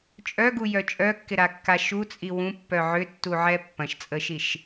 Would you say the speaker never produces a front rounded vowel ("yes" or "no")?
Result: no